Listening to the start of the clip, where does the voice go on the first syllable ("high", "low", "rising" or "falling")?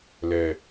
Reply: low